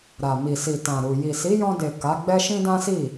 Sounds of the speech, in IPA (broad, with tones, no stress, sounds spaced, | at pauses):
ɾ a˨ m i˨ s i˨ t ã˨ ɾ u˨ j i˨ s i˨˦ j ɔ̃˧ d e˨ k a˨˦ ɡ͡b ɛ˦ ʃ ĩ˦ d ã˦ s i˦˨